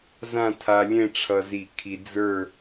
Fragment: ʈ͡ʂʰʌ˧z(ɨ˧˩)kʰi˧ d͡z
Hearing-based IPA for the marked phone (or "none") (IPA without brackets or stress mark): i˧˩